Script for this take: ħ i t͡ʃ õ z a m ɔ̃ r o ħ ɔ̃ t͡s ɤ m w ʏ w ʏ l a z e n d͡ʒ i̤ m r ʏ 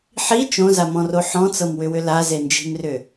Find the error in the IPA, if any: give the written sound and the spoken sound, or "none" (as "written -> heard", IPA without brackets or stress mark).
none